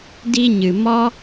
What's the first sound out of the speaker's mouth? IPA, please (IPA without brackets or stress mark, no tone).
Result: d